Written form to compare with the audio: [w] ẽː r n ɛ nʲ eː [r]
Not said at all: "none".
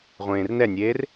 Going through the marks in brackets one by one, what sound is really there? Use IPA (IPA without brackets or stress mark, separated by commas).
ʁʷ, r